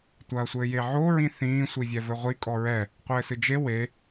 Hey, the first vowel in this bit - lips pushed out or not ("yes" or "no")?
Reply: no